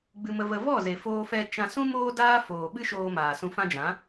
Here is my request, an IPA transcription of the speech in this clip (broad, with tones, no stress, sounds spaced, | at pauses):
ɡ͡b ɨ˧ m ə˧ v ə˧ v ɔ˦˨ z e˨ f oː˧ f ɛ˧ t͡ʃ ã˧ s ũ˦ m oː˦ d aː˦ f oː˨ ɓ ɨ˦ ʃ oː˧ m aː˨ s ũ˧ f ã˦ d͡ʒ ã˨˦